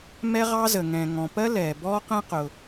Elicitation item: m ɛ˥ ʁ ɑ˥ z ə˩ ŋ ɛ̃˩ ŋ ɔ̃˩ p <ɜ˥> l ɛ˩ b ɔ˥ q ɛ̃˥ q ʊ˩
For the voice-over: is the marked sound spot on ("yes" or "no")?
yes